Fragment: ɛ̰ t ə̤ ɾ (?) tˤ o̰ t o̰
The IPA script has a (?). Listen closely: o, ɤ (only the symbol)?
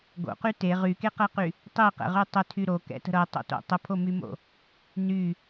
ɤ